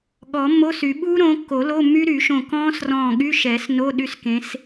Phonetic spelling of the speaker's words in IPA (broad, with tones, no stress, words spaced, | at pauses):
ɠɔ˨˩˦ mːo˧˥˧sy˨˩˦ ɓuː˦˥ɾõː˨˦kːo˨˩˦ lo˧˥˧mːy˦˥ɾy˨˩˦ʃõ˧˩ kɔ̃ː˦˥srɔ̃ː˧˩ ɠy˧˥˧ʃɛ˨˩˦s no˧˥˧ ɗy˦˥skẽ˨˦s